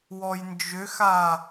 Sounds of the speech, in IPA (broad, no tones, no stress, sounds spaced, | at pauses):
w ɔ j n d͡ʒ ʏ x a